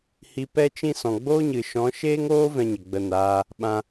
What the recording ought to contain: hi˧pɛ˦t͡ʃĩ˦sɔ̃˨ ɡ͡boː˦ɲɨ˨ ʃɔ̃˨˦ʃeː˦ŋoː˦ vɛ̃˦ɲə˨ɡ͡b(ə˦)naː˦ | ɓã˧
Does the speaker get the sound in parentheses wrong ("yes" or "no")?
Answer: yes